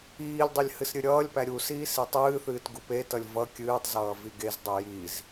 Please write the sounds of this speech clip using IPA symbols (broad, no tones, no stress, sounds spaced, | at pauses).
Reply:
iː lʲ dˤ ɨ lʲ h ɨ s ɾʲ ɨ ɾʲ ʌː lʲ p æ ɾʲ u s iː s i tˤ ɨː θ ɨː t ɡ u p e t ʌ lʲ v ʌ kʲ ɨː tˤ z ʌː v i ɡ e z dˤ e j i z